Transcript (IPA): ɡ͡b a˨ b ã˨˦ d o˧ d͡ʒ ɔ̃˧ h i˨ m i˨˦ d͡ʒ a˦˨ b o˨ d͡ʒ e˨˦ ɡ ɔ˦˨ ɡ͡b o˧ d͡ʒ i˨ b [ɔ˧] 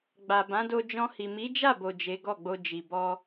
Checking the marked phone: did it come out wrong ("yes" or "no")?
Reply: no